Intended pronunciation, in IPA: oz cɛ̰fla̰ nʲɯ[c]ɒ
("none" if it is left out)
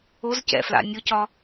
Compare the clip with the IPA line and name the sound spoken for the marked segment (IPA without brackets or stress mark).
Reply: c